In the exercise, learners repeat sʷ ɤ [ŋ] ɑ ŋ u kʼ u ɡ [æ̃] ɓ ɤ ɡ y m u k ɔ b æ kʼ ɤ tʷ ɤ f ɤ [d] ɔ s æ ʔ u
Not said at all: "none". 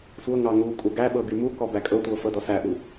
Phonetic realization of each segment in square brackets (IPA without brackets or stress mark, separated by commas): ŋ, æ, d